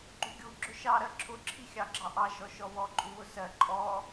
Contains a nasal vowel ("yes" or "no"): no